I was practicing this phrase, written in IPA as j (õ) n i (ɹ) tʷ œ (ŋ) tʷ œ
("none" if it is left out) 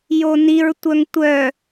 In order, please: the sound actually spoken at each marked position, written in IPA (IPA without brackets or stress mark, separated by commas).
o, ɹ, ŋ